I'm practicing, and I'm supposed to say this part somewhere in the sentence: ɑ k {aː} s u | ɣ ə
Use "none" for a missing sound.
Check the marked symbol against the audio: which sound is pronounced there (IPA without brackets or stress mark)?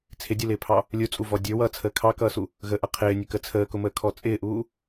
ʌː